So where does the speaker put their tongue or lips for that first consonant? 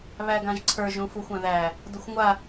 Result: lips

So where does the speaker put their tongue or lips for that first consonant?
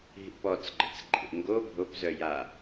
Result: throat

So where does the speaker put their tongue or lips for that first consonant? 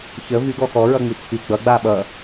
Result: palate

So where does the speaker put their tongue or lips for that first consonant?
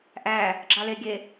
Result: throat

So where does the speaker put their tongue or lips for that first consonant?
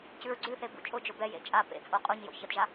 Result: palate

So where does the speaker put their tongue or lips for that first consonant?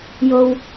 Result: palate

